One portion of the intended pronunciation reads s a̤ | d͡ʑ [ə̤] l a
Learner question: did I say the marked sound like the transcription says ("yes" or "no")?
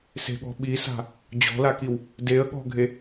no